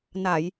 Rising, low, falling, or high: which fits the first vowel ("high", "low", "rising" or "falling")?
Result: low